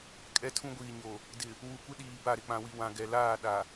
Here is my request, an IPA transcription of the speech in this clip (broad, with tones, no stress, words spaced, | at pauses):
kʼɛ˦tʰũ˦ ɡʷiː˨ɲo˨ | dɪ˨ | wu˨kʷɪ˦ɗiː˨ ba˦˨ɾɪ˨k͡pã˨wi˨ wã˨ ɡɛ˨ laː˦˨ ɗa˨